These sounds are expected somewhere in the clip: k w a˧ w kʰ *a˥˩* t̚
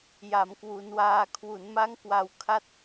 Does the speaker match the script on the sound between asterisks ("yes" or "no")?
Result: yes